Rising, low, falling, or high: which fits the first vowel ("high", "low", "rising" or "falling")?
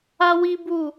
high